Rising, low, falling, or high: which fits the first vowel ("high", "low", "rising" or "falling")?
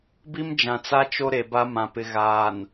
high